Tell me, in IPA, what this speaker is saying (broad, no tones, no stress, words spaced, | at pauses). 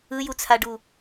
ɯjut͡sʰaɖu